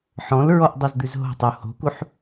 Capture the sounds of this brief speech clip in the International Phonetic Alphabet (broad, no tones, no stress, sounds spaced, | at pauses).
ħ ɔ̃ l ɹ ɔ ʔ dˤ ɛ z d̪ ʉ z ɦ o̤ tˤ u h o̤ k u ħ